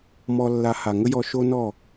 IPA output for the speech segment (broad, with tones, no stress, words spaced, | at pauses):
mɔ˧lːa˧ ha˨ŋə˦jɔ˧ ʃo˦nɔ˦˨